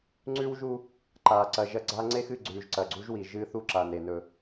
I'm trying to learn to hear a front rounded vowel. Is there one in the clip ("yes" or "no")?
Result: no